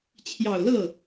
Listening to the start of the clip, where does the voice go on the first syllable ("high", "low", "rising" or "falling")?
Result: low